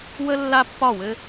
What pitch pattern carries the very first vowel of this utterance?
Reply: high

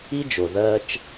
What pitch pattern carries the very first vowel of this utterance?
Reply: high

